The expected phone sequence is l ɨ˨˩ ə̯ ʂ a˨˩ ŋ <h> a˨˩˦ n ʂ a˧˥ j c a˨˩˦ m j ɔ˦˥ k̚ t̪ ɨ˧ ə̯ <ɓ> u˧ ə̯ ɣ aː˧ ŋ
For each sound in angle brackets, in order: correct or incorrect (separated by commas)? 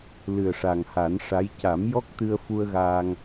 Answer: correct, incorrect